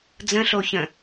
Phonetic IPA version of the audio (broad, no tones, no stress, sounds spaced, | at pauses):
d͡z ə̃ ɬ o ç ə̃